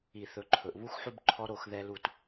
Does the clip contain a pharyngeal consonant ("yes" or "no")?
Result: yes